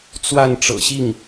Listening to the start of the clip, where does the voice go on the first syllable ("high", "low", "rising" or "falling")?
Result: falling